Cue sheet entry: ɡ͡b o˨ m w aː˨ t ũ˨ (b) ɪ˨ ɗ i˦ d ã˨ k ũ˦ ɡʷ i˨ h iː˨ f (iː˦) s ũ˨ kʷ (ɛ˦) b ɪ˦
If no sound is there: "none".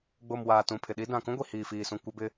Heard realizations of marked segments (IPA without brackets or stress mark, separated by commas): pʰ, iː˨, ɛ˦